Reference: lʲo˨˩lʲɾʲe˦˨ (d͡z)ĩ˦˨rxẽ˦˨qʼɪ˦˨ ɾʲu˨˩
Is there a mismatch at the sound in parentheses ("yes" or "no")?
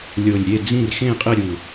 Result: no